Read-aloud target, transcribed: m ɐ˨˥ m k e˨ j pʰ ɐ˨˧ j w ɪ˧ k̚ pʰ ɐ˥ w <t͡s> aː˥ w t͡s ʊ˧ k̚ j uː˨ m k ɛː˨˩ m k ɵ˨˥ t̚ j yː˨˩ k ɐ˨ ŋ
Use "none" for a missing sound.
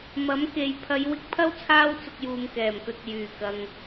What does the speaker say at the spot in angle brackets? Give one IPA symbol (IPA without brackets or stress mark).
t͡sʰ